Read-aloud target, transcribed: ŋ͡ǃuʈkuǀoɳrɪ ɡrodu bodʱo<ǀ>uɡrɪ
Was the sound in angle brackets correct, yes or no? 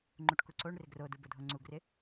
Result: no